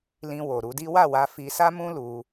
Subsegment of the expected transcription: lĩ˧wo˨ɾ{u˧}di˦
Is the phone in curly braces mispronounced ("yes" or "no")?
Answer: no